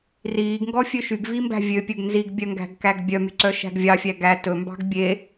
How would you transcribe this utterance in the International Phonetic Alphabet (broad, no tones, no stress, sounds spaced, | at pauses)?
r iː ɡ ŋ ɡ ɔ fʲ ø ʃ y ɡ v i m b æ̤ vʲ ø pʲ ɵ ɡ n z i ɡ bʲ œ ŋ ɡ æ̤ ɡ k æ ɡ bʲ œ m y ǀ œ ʃ æ̤ ɡ vʲ ɑ fʲ æ ɡ æ t ɵ m b ɑ̤ ɡ bʲ e